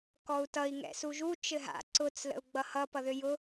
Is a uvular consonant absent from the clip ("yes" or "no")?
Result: yes